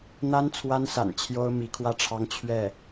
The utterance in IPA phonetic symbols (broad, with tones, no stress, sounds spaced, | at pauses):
n̪ a˥ n t͡sʰ w a˥ n s a̰˨˩ n t͡ɕʰ j o˥ ʊ̯ m i˧˥ kʰ w ä˥˩ ʈ͡ʂʰ ɑ˥ ŋ t͡ɕʰ ɥ ɛ˥˩